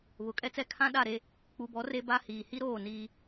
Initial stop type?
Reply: ejective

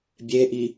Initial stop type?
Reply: plain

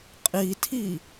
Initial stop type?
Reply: ejective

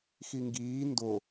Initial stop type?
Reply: plain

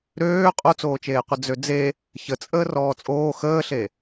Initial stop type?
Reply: ejective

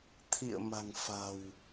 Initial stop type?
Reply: aspirated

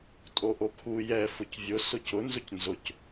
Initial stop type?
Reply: ejective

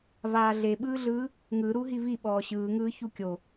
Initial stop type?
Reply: implosive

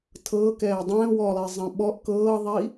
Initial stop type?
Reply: aspirated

